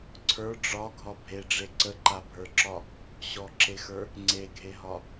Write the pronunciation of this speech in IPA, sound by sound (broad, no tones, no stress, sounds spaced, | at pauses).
ǀʰ ə˞ ɖ͡ʐ ɒ ɡʱ ɒ bʱ e ɖ͡ʐ e ǀ ə ǃ a bʱ ə˞ ǁ ɒ | ɕ ɔ ǁ e x ə˞ | ŋ͡ǀ e ɡʱ e ɦ ɒ